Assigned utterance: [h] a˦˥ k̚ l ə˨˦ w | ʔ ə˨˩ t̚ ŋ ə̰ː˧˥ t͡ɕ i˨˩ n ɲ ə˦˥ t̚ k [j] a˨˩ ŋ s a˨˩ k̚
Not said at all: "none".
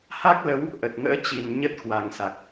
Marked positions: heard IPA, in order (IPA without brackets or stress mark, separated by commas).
h, w